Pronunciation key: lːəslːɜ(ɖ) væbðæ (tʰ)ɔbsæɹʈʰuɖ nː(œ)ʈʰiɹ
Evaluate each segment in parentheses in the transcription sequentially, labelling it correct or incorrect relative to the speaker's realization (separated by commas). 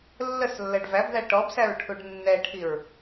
correct, incorrect, incorrect